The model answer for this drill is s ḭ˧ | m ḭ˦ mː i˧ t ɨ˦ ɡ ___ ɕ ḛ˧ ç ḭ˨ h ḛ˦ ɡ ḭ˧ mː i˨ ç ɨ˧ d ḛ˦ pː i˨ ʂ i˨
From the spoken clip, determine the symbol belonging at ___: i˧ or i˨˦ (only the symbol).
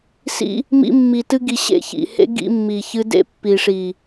i˧